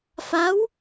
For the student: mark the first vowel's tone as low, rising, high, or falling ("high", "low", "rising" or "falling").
rising